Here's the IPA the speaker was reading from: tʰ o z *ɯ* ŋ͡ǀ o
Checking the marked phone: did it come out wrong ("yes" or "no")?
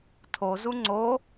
yes